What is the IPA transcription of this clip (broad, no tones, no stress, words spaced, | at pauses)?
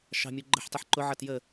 ʃɑ̤mʲu ɡ͡ǃə̤ħtˤɪħ ǃʊʕʌt jə